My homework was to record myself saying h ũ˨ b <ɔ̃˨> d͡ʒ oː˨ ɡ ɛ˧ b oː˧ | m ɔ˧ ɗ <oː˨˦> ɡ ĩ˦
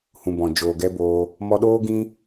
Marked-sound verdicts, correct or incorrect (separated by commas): correct, incorrect